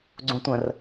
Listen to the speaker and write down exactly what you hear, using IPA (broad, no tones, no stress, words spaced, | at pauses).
ɡ͡ǀũtʷə̃r